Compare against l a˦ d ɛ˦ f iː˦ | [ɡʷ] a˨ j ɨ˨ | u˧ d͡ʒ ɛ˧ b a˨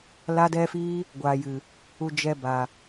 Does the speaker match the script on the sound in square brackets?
yes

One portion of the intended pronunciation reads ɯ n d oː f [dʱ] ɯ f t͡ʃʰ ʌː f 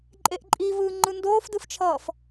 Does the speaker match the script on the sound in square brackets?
no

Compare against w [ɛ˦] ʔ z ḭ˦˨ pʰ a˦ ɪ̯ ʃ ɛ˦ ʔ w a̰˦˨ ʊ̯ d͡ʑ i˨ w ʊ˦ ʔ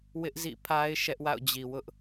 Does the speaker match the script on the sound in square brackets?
no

